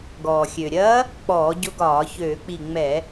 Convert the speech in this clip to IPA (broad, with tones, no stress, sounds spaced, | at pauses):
ɡ ɔː˩ xʲ ø˩ ɾʲ ɐː˧˥ | k͡p ɔː˧˩˧ ɟ ʊ˧˥ ɡ ɒː˧˩˧ ç øː˧˩˧ k͡p i˧˩ ŋ͡m ɛ˧˩˧